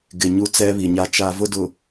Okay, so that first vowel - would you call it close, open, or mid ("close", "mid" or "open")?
close